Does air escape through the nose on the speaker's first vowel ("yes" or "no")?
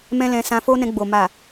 yes